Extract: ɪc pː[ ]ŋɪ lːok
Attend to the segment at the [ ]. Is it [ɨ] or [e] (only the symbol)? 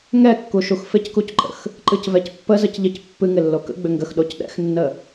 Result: ɨ